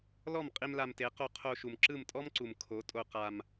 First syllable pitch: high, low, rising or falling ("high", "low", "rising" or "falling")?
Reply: falling